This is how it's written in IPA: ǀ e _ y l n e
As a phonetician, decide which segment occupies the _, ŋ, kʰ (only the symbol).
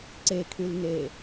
kʰ